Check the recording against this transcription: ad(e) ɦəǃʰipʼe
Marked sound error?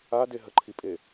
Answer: no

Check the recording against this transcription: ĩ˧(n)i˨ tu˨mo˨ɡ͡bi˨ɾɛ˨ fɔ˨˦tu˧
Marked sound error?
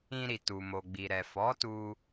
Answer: yes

